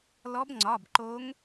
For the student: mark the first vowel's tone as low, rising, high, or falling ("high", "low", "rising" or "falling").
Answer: rising